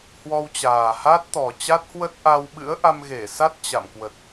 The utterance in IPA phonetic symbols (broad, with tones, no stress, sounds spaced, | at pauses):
h w ɔ˧ w t͡ɕ aː˨˩ h a˦˥ t̚ t̪ ɔ˨˩ t͡ɕ a˦˥ t̚ h w ə˦˥ t̚ ʔ a˧ w ɓ ɨ̰˧˥ ə̯ ʔ a˧ m ɣ e˧˩ s a˦˥ t̚ t͡ɕ a̰˧˨ m k w ə˨˩ t̚